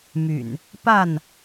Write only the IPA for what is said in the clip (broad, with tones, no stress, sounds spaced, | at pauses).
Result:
m y̰˨˩ n | p a˥˨ n